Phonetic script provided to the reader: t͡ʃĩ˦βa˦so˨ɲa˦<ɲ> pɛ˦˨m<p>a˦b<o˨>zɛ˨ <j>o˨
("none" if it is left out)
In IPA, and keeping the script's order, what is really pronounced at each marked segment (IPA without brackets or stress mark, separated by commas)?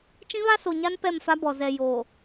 n, f, ɔ˨, j